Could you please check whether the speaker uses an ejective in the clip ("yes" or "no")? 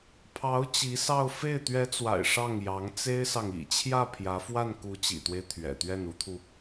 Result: no